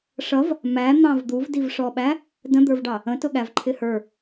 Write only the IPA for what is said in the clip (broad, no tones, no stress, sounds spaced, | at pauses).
ʂ ʌ v | m æ n̪ ɑ̃ v d̪ u v d i v ʂ ɔ ɓ æ | d ə̃ d̪ ə˞ v ɖ ɑ | ə̃ t ʊ ɠ æ v ǃʰ ɪ h ə˞